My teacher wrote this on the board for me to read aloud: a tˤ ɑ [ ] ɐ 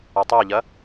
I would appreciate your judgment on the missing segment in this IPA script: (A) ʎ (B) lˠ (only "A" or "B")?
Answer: A